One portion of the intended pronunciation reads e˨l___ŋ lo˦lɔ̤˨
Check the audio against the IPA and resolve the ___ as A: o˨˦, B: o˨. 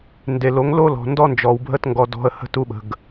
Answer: A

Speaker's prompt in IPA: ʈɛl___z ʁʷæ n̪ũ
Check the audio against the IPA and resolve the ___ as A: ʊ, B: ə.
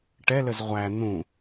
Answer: B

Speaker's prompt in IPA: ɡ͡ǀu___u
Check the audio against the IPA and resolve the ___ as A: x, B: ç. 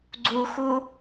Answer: A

